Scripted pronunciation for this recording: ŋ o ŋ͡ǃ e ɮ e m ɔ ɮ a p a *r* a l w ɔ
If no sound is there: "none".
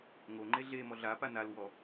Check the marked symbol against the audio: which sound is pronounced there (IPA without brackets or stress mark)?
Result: n